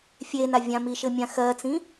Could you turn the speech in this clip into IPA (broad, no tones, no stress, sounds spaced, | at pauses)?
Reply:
fʲ e n a vʲ ã m i ʃ ɘ mʲ ã x ɜ t͡s ĩ